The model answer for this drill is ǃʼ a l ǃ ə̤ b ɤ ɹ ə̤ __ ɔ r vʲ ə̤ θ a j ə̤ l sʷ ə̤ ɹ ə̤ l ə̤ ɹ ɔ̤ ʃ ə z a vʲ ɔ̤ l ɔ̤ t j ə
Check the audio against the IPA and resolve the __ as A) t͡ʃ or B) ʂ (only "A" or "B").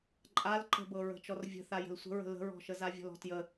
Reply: A